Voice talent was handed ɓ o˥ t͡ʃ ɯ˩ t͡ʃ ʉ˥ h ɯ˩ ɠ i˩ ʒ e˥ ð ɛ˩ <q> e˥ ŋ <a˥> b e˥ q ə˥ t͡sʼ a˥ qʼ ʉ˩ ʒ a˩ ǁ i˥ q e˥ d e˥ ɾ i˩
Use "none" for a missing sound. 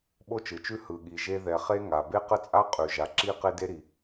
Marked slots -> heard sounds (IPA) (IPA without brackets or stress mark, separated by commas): χ, a˩